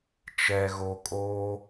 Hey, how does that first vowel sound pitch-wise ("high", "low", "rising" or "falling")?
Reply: low